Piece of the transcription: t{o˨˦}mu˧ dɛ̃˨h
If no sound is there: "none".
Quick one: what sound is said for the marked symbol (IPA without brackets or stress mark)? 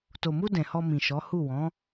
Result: o˨